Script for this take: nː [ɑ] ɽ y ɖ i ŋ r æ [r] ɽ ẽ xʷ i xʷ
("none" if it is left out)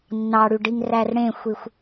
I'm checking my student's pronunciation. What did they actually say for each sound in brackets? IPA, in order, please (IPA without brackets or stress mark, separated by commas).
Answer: ɑ, r